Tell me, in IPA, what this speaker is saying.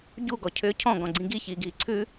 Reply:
ɟ u ɡ ɔ cʰ ʏː cʰ ɔ̃ ɡ ɔ̃ ɡ͡ǀ ĩ ɡ i ç iː ɡ iː ǀʰ ʉ

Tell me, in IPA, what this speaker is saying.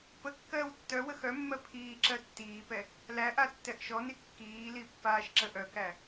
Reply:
p ə kː ɜː w tː œ w ə x œ mː ɜ pʰ iː ǁ ɜ tː iː p ɛ | l æ ʔ a tː ɛ ʔ ʃ ɔ n i kː iː l i pː aː ʃ ǁ ə ʔ œ k æ

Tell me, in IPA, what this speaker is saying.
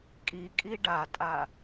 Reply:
kʼ i kʼ i ɖ a tʼ a

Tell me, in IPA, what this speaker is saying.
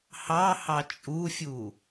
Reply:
h ɑ h ɑ t͡ʃʼ u fʲ u

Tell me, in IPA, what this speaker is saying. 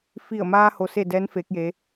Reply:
f i˧˩ ə̯ m aː˧ h o˧ s e˥˨ d ɛː˧˥ n f eː˧˥ k̚ j eː˧˥

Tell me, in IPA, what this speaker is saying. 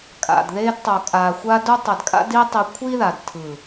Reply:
kʼ a̰˨ d ð e˧ d tˤ o˨ kʼ a˨ xʷ a˧ d u˧ tˤ ɛ˨ d kʼ a̰˧ d i˧ tˤ i˧ kʷʰ i˦ ð a˨ d tʰ ɯ˨

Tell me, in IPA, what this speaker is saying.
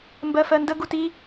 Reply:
m b ɜ f ɜ n d ə ɡ u t i

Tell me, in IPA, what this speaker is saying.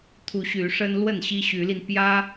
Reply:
t̪ʰ u˨˦ ɕ y˨˦ ʂ ə˦ n l w ə˥˨ n ɕ i˦ ɕ y˨˦ l i˧ n p j ä˦

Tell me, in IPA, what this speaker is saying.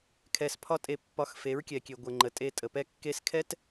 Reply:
kʰ ɛ˧ s pʰ ɒ˦ tʼ e˧ pː ɒ˧ x f e˨˦ ɹ kʲ ɛ˨ kʲ e˨ ɡʷ ə˨ ŋ͡ǃ ə˨ tʼ e˧ tʼ ə˨ p ɛ˦ kː e˦ s kʰ ɛ˦ t

